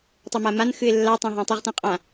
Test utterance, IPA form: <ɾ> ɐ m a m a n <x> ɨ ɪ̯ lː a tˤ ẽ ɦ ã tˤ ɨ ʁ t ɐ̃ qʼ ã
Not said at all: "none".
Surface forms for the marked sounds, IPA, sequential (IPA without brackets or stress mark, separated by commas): tˤ, x